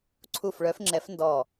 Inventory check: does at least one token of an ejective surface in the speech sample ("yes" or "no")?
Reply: no